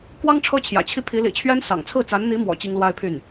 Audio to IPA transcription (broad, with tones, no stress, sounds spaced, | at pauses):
k w ɑ˥ ŋ ʈ͡ʂʰ ɤ˥ t͡ɕʰ j ä̰˨˩ t͡ɕʰ i˥ pʰ i˧˥ l ḭ˨˩ t͡ɕʰ ɥ ɛ˥ n s ɑ̰˨˩ ŋ t͡sʰ ɹ̩˥˩ t͡s a˧˥ n n̪ i˧˥ m w ɔ̰˨˩ t͡ɕ i˥ ŋ l w a˥ ɪ̯ pʰ y˥˩ n